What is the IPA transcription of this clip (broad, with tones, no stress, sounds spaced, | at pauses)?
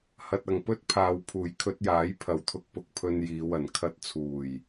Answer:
h ɐ˨ t̚ ɐ˨˩ ŋ p ɵ˥ t̚ pʰ aː˨ w pʰ uː˨˩ j kʰ ɵ˧ t̚ j aː˨˥ j pʰ ɐ˨˩ w t̪ʰ ʊ˧ k̚ p ʊ˨ k̚ pʰ ɵ˧ n j iː˨˧ w ɐ˨˩ n kʰ ɐ˧ t̚ t͡sʰ uː˨˩ j